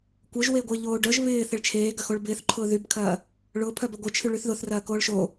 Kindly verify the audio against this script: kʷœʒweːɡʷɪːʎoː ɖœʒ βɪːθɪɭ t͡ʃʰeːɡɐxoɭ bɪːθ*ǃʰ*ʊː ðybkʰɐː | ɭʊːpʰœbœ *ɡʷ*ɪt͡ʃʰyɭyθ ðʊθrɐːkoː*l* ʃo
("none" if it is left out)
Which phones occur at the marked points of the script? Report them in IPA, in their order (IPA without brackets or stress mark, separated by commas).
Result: ǃʰ, ɡʷ, ɭ